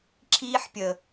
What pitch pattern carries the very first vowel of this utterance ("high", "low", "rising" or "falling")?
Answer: high